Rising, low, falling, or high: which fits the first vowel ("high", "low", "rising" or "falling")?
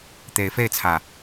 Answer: rising